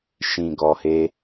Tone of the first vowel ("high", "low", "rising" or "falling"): low